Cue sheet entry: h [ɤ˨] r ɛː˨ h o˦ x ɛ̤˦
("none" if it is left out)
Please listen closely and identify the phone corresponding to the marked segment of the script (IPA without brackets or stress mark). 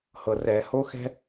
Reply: ɤ˨